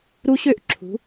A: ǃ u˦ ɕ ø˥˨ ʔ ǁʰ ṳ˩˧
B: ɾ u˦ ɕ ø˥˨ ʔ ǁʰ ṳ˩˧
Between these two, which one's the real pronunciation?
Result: B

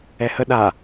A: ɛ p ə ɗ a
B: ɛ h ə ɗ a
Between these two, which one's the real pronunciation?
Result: B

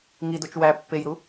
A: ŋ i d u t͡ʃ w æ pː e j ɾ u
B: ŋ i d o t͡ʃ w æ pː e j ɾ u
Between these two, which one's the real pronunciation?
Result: B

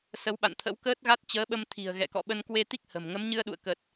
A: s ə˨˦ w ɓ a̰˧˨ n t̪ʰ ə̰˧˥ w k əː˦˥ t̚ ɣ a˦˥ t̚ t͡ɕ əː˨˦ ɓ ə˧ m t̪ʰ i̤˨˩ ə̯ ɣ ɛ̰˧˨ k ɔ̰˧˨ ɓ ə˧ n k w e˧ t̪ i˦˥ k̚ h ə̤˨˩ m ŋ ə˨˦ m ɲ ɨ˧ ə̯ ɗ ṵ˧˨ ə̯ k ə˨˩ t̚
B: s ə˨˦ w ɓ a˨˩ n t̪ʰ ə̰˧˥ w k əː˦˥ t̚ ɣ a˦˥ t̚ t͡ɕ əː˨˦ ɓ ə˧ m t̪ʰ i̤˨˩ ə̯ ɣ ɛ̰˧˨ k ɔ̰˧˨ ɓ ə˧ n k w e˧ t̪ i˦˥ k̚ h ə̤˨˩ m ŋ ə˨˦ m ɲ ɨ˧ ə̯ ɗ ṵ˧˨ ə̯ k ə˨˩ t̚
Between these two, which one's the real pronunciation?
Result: A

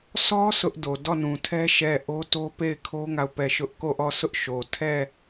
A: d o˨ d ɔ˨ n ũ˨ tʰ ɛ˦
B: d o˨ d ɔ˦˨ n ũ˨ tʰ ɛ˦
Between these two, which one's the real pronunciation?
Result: B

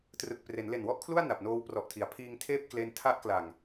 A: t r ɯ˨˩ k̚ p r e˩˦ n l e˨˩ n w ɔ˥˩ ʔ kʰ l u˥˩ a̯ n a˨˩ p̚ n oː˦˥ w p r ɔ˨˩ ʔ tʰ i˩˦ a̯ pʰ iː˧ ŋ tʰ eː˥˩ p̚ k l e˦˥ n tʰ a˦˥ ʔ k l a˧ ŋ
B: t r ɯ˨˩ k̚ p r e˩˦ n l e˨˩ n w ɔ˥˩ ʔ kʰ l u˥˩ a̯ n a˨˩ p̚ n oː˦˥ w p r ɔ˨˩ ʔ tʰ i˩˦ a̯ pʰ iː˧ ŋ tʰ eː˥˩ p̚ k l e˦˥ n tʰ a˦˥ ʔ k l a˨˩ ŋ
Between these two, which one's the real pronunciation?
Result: B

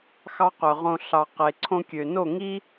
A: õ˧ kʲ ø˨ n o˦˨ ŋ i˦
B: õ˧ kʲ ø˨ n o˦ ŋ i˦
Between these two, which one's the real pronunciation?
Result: A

